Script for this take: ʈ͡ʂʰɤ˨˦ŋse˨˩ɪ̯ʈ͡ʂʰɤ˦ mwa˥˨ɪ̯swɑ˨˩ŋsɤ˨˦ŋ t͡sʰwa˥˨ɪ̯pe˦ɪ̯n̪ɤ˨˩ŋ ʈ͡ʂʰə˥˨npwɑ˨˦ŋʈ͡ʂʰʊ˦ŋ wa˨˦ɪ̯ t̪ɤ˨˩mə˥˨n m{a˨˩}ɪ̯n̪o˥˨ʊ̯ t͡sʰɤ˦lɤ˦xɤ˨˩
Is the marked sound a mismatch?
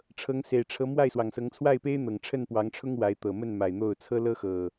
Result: no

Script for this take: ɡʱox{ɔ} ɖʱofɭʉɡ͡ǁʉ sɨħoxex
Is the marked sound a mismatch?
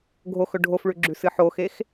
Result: yes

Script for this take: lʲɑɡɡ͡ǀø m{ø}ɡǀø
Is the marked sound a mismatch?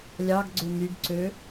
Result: yes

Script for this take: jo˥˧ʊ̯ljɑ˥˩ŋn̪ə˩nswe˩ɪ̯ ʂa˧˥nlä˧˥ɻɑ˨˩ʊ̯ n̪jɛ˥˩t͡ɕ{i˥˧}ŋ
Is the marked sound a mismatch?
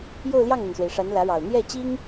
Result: yes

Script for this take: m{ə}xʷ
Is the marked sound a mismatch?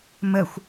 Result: no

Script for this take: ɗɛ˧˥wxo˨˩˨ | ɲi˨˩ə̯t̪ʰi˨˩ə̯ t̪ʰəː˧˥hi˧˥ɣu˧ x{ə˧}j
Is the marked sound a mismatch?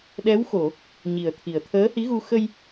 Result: no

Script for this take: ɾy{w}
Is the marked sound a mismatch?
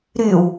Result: no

